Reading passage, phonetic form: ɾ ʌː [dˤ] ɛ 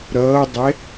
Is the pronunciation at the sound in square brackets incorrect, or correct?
correct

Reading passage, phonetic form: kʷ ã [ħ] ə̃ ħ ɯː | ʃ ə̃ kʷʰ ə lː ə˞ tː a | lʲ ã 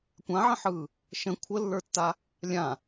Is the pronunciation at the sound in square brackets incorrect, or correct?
incorrect: ʕ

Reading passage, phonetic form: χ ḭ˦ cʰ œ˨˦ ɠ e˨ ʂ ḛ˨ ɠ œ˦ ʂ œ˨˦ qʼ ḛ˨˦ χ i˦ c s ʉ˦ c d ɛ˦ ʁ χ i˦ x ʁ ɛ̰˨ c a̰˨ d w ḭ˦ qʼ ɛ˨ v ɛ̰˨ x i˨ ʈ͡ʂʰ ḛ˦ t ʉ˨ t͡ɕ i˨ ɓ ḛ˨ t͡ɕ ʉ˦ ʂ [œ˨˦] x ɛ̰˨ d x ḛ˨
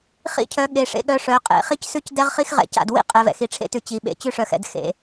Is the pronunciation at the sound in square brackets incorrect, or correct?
incorrect: œ˨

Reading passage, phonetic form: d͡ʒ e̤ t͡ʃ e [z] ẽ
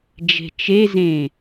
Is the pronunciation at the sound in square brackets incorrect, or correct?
correct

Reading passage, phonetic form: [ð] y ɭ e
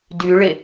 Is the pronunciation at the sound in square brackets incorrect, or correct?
incorrect: d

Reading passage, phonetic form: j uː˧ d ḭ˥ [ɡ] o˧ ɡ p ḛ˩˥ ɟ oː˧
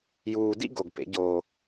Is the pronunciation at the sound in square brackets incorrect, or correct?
correct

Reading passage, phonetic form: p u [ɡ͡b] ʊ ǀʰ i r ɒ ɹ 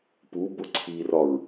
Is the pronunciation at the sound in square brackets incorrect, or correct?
incorrect: b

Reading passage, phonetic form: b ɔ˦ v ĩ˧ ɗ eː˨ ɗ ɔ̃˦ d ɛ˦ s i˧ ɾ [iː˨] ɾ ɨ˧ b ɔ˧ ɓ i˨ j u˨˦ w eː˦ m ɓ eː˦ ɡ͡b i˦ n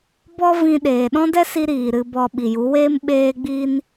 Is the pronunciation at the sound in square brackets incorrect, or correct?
correct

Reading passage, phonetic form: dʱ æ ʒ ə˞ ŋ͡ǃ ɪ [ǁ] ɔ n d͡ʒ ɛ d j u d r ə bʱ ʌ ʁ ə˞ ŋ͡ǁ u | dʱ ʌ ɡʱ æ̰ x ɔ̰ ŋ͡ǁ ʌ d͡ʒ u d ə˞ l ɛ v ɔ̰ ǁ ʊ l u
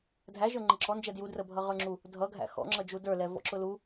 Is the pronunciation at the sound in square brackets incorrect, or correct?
correct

